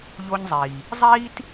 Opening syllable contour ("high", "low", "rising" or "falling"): high